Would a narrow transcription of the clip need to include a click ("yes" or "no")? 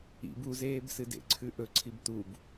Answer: yes